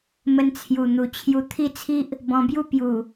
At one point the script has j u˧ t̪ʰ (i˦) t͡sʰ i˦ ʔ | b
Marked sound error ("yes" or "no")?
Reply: yes